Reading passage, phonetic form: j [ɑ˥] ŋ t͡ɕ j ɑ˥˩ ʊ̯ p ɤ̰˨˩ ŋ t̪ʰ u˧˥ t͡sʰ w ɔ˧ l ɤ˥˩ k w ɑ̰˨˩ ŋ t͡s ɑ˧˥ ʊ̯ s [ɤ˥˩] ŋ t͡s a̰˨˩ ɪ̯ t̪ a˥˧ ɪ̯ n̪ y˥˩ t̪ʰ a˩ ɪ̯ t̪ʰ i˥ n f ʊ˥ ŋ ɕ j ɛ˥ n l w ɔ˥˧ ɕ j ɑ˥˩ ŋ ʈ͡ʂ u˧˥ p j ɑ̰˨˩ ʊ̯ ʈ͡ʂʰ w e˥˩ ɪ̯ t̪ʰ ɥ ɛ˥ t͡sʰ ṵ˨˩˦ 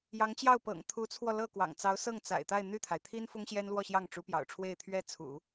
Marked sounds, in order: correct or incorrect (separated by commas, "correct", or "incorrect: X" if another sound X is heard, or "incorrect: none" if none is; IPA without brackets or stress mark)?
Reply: incorrect: ɑ˧˥, correct